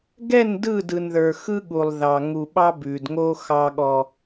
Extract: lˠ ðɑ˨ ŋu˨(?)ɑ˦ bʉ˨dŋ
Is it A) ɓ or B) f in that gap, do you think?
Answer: A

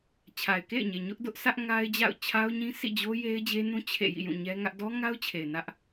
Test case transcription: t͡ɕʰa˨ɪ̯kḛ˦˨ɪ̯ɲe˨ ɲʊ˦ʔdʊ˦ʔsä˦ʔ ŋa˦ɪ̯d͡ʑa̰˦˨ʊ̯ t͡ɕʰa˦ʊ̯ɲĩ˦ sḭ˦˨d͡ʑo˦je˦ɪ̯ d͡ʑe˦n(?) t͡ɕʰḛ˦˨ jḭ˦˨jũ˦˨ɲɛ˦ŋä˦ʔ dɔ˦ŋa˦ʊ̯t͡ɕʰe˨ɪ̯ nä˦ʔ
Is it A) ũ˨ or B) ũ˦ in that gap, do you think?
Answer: B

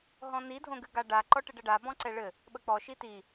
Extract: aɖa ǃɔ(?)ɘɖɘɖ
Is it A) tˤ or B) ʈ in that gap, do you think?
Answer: B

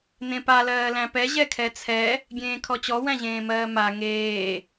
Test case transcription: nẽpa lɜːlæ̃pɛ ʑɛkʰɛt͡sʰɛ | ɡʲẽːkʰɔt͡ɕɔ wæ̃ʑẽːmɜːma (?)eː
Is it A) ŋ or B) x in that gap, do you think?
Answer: A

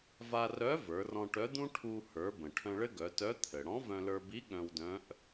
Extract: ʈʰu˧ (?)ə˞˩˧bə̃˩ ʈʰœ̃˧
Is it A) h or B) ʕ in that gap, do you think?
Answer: A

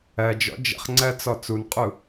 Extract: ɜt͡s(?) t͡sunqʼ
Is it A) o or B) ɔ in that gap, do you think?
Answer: B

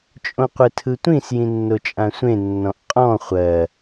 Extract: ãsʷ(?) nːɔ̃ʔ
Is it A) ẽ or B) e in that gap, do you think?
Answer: A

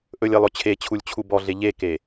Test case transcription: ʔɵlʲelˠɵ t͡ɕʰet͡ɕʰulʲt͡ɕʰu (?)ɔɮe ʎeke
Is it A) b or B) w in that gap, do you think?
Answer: A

